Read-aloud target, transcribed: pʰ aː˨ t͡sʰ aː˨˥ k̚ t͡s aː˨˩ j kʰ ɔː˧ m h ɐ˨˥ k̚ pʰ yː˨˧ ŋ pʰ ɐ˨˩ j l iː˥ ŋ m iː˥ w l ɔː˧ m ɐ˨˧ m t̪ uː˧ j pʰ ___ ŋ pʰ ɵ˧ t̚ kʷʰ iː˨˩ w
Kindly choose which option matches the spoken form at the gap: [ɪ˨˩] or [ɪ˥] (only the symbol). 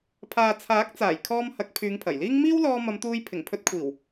ɪ˨˩